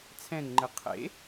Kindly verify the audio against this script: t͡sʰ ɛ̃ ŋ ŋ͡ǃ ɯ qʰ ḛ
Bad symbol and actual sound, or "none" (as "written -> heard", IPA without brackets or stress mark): none